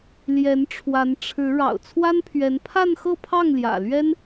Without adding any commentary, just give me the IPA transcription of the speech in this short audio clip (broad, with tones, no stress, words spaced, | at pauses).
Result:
ljɛ˧˥nʈ͡ʂʰwa˧˥n ʈ͡ʂʰɻ̩˧˥ ɻɑ̰˨˩ʊ̯t͡sʰwa˥npʰɥɛ˧˥n pʰa˥˧nxɤ˥˧pʰɑ˥˩ŋ ljä̰˨˩lɥɛ˥n